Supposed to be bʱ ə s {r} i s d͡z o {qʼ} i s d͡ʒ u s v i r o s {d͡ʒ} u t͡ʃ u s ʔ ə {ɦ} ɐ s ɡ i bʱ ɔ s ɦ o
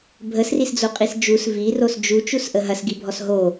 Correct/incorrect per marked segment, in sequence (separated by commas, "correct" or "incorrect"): correct, correct, correct, correct